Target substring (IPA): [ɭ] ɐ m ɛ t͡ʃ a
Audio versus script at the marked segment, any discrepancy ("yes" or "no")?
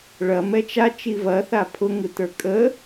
no